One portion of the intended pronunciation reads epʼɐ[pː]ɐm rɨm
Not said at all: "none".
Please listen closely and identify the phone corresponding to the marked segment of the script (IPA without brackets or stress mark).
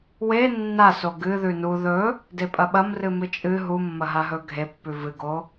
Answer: ɓ